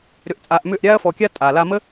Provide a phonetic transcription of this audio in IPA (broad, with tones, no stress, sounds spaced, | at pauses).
ɾ ʏ˧ ʔ t͡sʼ aː˧ ʔ m ʏː˦˨ ʔ ɾʲ aː˦ ɐ̯ f ɔ˧ kʲ a˦ tʼ aː˨ l a˧ m ə˦